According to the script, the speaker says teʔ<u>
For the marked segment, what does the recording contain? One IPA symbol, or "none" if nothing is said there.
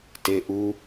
u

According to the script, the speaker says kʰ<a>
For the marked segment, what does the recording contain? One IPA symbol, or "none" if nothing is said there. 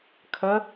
ə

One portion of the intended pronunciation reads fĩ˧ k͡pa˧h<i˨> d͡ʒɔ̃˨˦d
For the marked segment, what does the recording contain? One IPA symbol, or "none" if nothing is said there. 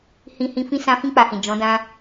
ĩ˨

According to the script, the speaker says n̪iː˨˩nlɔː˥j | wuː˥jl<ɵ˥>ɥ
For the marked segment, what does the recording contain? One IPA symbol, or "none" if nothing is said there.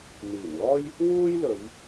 ɵ˨˧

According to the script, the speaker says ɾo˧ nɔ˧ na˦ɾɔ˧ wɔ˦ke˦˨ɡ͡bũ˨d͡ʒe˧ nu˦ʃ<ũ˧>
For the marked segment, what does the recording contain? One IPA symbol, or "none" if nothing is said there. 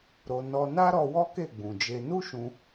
ũ˧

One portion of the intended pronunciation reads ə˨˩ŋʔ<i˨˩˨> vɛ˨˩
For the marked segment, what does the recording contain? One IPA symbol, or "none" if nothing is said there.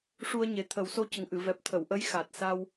ɨ˨˩˨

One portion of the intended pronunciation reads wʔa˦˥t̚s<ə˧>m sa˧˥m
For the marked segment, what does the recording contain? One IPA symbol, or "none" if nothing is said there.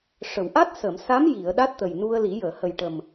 ə˨˩˨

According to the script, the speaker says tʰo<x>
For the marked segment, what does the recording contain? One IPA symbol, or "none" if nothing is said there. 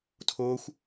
xʷ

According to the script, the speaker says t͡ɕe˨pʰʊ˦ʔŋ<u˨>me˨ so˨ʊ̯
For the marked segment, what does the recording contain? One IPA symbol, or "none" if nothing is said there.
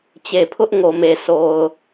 o˨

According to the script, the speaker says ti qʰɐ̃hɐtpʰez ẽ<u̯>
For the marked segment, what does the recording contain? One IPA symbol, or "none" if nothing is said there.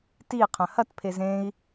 i̯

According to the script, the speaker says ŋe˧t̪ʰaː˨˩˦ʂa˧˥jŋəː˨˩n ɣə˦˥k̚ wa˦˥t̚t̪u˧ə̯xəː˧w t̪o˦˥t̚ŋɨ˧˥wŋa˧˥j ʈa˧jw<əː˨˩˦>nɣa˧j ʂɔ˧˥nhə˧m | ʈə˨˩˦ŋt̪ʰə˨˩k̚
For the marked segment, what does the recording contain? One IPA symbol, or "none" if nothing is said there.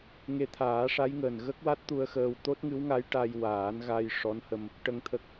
aː˨˩˦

